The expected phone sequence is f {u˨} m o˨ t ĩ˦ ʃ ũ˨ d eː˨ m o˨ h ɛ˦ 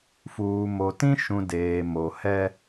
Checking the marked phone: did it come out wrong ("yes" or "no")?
yes